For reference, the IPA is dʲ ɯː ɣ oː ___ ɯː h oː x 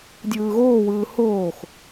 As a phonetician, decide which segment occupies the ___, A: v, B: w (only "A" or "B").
B